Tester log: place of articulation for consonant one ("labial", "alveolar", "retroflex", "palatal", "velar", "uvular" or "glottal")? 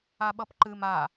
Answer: labial